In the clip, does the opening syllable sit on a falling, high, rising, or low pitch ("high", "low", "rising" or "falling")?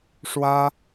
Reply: high